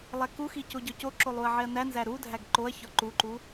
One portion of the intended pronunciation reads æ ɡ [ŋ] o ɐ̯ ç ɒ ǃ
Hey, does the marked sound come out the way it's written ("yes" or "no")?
no